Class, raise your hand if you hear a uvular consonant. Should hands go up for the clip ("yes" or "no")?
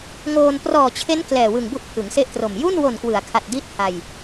no